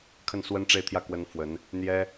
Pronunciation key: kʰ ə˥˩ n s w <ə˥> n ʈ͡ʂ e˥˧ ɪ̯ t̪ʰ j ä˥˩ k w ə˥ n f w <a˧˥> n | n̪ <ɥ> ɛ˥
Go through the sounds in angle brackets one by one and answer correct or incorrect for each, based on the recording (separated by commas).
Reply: correct, incorrect, incorrect